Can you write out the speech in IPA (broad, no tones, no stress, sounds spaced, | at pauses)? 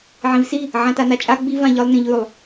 ʕ ĩ v s i | ʕ ã t a n a t͡ʃʼ a ɡ͡b i v ã ʎ ɯ lˠ n ĩ ʎ ʉ lˠ